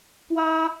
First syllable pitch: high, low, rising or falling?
high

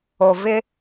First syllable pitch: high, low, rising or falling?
low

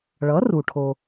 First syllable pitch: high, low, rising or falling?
rising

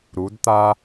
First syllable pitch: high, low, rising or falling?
rising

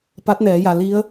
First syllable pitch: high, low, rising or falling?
rising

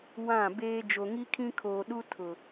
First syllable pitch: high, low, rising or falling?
falling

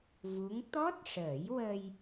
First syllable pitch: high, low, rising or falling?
rising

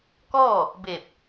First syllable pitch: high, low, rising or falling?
falling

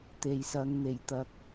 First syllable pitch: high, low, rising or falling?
low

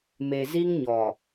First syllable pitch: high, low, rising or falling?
low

